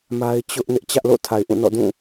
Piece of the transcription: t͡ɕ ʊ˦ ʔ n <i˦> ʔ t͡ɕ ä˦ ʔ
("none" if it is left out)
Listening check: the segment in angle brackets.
ɪ˦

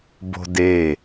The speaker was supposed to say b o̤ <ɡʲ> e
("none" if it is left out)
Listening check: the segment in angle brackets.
d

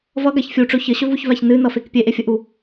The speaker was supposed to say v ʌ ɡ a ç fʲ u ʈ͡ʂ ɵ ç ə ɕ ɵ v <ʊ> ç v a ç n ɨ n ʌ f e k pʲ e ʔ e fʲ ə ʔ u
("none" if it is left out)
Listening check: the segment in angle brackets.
u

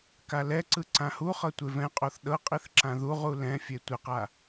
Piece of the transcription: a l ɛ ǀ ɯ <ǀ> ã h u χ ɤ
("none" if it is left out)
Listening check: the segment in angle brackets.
ǀ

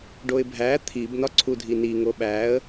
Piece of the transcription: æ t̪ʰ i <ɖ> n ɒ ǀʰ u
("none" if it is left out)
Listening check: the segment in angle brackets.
b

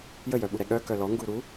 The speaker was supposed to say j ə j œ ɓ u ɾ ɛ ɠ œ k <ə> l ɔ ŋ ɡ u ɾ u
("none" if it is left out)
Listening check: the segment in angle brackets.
œ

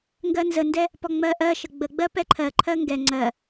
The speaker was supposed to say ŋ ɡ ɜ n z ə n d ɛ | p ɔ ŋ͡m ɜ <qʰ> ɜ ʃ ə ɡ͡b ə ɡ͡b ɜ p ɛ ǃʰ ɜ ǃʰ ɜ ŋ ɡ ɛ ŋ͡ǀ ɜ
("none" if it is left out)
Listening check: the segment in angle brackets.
ʔ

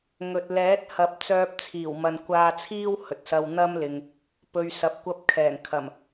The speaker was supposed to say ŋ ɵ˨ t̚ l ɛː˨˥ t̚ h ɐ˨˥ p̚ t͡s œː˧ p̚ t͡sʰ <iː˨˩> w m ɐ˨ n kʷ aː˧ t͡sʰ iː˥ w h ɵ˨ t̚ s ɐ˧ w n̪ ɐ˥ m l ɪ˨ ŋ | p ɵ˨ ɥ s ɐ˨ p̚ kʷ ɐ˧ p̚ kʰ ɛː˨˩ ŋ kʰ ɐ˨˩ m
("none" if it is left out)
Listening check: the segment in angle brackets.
iː˨˩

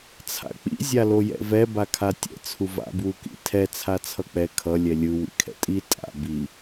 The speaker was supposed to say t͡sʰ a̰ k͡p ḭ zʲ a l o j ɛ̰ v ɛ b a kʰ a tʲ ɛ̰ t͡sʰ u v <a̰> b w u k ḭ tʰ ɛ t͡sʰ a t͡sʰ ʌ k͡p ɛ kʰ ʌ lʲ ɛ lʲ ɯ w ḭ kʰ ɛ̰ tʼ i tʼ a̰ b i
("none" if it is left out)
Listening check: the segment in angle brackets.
a̰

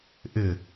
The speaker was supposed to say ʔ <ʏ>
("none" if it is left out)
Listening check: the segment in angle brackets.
ɪ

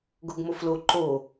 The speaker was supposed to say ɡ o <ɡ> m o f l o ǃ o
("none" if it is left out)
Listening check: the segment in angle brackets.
ɡ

